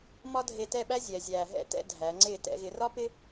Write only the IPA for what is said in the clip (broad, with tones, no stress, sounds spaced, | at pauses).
m ɒ˥ dʱ e˧ t ɛ˥˧ ɓ æ˥ zʲ ɛ˩˧ zʲ æː˧ ɦ ɛ̰˥ t ɛ̰˥˧ dʱ æ˩˧ ŋ͡ǀ ɪː˧˩ t ɛ̰˩˧ ɣ ɪ˩˧ r ɒ˥ p ɪ˥